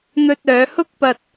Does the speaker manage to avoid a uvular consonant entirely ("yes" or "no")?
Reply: yes